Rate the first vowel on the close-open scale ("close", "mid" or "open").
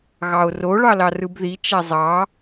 open